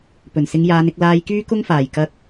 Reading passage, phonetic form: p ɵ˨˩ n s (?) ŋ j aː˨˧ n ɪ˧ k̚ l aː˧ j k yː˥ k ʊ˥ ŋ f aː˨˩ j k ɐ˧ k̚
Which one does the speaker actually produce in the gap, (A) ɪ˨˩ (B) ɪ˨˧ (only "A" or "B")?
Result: B